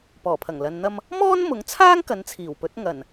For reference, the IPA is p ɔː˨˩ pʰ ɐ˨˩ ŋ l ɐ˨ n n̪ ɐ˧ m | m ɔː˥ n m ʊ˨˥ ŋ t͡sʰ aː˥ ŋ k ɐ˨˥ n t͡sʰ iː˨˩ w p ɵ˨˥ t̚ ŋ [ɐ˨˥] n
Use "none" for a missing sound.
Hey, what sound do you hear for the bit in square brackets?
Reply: ɐ˨˩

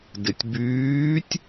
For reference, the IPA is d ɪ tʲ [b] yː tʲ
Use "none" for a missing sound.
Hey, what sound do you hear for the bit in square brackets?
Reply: b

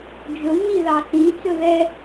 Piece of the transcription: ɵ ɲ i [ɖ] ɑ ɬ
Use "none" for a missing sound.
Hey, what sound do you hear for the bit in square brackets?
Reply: ð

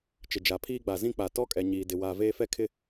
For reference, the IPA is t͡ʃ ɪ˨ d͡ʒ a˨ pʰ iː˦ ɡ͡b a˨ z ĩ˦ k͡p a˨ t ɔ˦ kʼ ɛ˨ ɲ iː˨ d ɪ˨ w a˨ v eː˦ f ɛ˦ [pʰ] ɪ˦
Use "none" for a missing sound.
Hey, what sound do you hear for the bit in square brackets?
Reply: kʰ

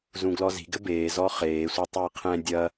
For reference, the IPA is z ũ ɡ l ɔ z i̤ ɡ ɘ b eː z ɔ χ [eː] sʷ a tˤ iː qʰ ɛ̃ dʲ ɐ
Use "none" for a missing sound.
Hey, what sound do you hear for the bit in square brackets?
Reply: eː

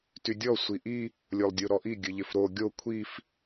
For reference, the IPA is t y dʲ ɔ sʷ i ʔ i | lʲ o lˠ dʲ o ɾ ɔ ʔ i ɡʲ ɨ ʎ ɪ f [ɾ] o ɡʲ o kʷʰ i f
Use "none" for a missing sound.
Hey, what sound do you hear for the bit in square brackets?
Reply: ɾ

